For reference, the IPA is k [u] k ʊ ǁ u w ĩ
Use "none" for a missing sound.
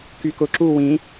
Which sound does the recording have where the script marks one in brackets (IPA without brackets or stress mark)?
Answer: y